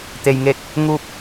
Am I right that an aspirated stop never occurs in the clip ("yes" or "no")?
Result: yes